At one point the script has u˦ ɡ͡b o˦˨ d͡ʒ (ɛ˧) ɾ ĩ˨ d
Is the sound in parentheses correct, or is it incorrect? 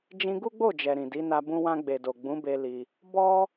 incorrect